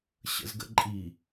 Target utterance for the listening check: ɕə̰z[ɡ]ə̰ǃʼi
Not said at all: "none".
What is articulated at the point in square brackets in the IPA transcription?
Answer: ɡ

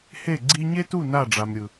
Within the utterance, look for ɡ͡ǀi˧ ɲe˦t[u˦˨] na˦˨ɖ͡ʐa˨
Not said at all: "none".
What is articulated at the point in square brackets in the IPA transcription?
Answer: u˦˨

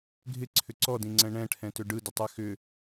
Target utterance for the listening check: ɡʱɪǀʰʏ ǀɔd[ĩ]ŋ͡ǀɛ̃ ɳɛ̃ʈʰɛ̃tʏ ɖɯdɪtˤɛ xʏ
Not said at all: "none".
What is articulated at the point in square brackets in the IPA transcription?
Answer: ĩ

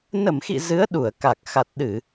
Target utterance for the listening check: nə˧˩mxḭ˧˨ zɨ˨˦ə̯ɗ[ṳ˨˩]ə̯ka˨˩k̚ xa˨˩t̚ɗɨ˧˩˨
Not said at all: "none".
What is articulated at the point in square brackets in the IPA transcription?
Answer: u˧˩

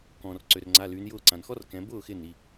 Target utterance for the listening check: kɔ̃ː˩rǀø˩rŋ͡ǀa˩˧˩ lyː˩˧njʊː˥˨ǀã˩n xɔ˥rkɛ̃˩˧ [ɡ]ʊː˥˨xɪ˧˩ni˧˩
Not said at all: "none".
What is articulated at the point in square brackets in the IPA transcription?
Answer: b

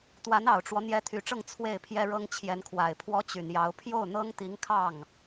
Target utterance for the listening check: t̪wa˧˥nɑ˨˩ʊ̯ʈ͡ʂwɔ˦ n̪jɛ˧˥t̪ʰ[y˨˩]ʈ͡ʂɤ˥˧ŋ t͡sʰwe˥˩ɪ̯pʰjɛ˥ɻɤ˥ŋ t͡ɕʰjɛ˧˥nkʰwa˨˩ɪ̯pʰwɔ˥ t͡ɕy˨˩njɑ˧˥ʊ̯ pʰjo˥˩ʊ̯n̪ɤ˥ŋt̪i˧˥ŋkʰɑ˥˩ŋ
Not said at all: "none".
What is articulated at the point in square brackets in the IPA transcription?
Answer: y˨˩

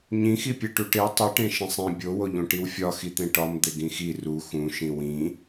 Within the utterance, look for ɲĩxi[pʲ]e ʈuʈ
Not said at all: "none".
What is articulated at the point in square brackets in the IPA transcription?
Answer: pʲ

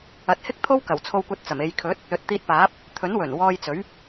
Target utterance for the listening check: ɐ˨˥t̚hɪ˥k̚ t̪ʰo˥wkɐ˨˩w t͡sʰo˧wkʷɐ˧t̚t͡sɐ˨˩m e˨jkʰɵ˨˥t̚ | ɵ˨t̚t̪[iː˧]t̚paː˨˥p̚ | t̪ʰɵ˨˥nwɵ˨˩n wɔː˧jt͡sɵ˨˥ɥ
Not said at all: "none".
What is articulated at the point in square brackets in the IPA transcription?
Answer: iː˧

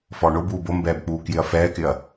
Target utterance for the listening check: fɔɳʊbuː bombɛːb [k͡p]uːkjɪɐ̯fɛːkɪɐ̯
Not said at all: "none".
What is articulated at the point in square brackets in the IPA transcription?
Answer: k͡p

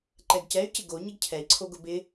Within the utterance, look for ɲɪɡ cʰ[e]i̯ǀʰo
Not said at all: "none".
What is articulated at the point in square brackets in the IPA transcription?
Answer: ɛ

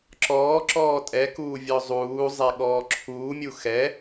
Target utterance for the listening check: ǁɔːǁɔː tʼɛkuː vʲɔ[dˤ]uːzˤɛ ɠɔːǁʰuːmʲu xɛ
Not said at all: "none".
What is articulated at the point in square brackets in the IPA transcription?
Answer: zˤ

